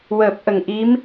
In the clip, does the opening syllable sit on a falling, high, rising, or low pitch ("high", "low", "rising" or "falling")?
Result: low